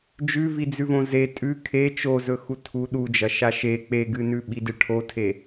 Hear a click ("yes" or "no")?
no